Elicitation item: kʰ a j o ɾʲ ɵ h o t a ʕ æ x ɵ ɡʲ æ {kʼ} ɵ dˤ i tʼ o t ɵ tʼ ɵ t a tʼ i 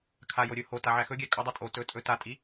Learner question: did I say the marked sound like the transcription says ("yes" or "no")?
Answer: yes